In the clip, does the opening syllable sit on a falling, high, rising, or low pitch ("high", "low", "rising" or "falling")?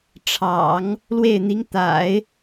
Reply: low